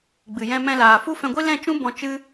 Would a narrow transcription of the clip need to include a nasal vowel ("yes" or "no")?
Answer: yes